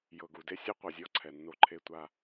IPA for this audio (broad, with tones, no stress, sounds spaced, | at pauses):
j ɤ˨ ɡ u˨ d e˦ sʲ ɯ˦ qʷ ɤ˨ zʲ ɔ˦ ǀʰ ɛ˨ nː o˧ ǃʰ e˧ tʷ a˧